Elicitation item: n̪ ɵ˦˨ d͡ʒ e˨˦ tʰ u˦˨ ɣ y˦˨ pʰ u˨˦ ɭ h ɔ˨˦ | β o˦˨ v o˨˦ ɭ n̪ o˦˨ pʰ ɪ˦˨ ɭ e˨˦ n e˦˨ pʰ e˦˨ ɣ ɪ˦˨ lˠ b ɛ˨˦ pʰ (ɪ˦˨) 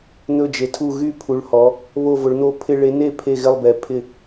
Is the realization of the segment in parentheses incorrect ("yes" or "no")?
no